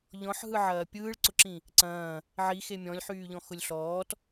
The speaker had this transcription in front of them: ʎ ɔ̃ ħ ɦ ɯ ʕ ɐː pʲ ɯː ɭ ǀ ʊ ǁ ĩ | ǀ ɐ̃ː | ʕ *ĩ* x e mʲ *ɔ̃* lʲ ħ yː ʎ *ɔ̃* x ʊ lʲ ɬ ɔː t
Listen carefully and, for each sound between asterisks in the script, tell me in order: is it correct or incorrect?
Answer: incorrect: i, correct, correct

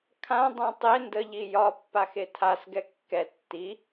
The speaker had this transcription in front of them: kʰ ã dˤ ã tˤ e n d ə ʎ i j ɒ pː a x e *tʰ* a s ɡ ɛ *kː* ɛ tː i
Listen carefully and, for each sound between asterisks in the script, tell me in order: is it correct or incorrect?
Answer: correct, correct

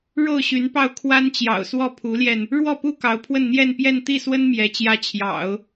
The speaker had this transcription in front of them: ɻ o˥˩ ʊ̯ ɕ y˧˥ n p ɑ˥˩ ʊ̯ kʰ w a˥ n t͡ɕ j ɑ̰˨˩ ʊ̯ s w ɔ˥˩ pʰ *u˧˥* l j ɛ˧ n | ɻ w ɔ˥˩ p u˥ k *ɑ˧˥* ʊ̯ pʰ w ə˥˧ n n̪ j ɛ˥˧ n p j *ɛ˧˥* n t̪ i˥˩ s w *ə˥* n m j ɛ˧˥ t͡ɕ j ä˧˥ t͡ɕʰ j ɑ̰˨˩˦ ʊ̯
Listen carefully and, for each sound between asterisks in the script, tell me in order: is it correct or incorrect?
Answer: correct, correct, incorrect: ɛ˥˧, correct

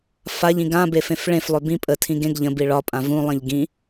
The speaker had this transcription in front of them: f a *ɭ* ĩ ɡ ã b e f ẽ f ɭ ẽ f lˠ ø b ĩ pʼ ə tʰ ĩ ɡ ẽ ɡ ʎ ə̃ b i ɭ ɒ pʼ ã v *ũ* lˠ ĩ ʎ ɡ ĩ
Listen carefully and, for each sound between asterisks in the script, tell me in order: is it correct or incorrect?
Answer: incorrect: ʎ, correct

